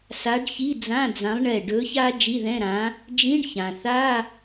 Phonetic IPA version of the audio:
s a˨˥ ɖ ç i˧˥˧ d͡z ã˧˥˧ d͡z ã˨˥ lˠ ɳ ɛ˧˩ ɖ ɵ˨˥ ç a˥ d͡ʒ i˧˥˧ ð ɛ̃˧˥˧ ɾ ã˨˥ | d͡ʒ ĩ˧˥˧ ɳ ç ã˩ θ a˧˥˧

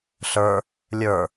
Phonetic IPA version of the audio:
ɬ ə˞ | lʲ ə˞

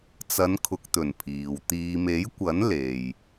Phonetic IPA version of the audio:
t͡s ɐ˨˧ n kʰ ʊ˨ k̚ t̪ ɵ˨˩ n pʰ iː˨ w t̪ iː˨ m e˨˥ j kʷ ɐ˨˥ n l e˨ j

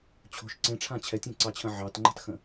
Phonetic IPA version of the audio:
t͡ɕʰ o̤ ʃ ǀ ẽ ʈ͡ʂʰ ã t͡ɕʰ ɛ tʲ ẽ ǀ ɑ t͡ɕʰ ə̃ ʕ ɑ t ŋ͡ǃ a̤ t x ə̃

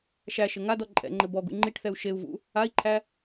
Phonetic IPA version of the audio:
ʃ æ ʃ ɘ ŋ a d ɔ ǃʼ ɛ̰ ŋ͡ǃ ɘ b ɔ ɡ ṵ ŋ͡ǃ i ʈ θ ɛ u̯ ʃ e u̯ v ṵ | a i̯ ǃʰ æ

